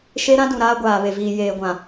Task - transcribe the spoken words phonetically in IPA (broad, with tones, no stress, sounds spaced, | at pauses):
ʃ e˦ ɾ ã˦ d ũ˨ ɾ aː˦ ɡʷ aː˨ β e˨ v iː˨ j eː˨ ɡʷ ã˨